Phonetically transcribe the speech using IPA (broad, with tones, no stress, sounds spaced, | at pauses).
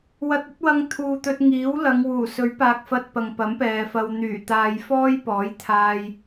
w ɐ˧ t̚ ɐ˥ t̚ w ɐ˧ ŋ t̪ʰ uː˨ t̪ ɵ˧ t̚ ŋ iː˨˥ w l ɐ˨˧ ŋ w uː˨˩ s ɵ˨˥ ɥ p aː˨ k̚ f ɐ˧ t̚ p ɐ˨ ŋ p ɐ˨˥ m p ɛː˨ f ɐ˧ w n̪ yː˨˩ t̪ aː˨ j f ɔː˥ j p ɔː˨˥ j t̪ʰ aː˧ j